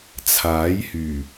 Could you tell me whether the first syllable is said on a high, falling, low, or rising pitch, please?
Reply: rising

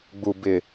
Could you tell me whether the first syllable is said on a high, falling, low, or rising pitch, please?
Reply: low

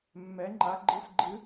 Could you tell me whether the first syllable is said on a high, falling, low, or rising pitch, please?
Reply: rising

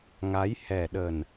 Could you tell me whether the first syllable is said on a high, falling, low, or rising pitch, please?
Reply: rising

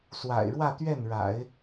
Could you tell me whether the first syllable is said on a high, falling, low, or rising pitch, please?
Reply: low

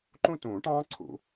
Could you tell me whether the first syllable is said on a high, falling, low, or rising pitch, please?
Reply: falling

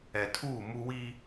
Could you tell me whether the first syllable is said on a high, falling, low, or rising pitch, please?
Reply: low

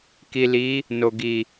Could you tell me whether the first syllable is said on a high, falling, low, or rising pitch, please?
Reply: low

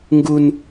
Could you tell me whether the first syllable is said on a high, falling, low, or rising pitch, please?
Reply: high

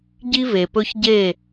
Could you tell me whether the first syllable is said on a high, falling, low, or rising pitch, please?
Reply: high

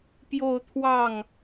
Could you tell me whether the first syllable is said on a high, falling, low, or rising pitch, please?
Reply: falling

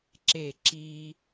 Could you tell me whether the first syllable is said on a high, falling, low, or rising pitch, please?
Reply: falling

